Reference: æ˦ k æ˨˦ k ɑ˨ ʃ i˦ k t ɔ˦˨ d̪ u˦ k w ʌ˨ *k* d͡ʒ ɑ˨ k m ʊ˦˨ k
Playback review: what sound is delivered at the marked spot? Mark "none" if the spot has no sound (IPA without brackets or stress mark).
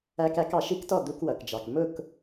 k